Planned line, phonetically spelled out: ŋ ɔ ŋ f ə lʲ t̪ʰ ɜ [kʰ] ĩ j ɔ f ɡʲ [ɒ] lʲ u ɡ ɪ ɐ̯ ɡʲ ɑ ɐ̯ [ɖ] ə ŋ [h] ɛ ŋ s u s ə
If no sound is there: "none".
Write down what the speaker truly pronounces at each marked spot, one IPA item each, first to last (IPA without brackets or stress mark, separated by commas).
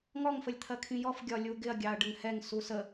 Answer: kʰ, ɒ, ɖ, h